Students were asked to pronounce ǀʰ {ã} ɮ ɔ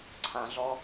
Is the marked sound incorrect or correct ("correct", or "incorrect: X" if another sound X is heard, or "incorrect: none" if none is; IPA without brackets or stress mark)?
correct